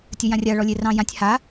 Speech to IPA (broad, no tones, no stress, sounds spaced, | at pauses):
tʲ ə j ã rʲ a ɭ ɔ lʲ e r ɑ̃ j ã tʲ h a